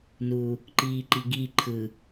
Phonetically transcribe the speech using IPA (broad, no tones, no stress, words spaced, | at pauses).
nu | ǃiːǃiɡi ǃʰɯ